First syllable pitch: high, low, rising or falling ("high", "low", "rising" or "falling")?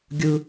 high